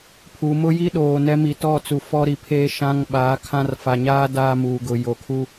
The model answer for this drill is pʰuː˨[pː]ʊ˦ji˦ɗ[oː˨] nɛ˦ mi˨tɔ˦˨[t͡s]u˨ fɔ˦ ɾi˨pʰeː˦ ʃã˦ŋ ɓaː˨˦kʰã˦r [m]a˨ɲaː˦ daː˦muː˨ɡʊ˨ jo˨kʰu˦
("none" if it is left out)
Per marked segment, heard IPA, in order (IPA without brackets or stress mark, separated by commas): m, oː˨, t͡s, f